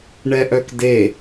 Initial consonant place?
retroflex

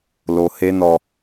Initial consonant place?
alveolar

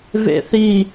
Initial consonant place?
labial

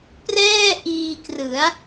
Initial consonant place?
labial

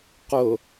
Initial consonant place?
uvular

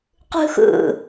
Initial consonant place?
uvular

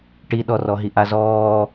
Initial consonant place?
retroflex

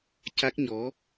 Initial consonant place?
palatal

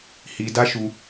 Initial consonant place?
glottal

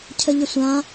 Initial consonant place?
palatal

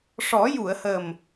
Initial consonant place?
retroflex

